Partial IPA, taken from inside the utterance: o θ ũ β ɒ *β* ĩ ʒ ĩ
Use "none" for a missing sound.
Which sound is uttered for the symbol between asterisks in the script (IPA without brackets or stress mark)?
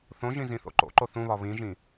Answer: β